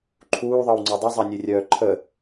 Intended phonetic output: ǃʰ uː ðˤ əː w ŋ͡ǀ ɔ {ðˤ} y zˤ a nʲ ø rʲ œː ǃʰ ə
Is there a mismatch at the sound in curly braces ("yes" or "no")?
yes